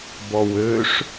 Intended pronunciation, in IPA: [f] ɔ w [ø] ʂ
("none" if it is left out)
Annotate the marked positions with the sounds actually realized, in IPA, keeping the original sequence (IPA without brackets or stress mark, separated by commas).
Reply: b, ø